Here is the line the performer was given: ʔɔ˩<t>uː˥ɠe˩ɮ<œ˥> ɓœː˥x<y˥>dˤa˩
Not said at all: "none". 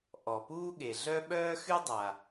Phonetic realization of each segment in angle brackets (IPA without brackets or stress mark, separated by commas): p, œ˥, y˥